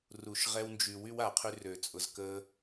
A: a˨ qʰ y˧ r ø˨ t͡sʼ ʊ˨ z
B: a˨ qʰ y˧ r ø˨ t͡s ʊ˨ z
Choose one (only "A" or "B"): A